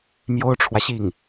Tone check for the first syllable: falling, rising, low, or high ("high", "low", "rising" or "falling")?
high